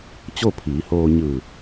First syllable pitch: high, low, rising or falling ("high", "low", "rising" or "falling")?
falling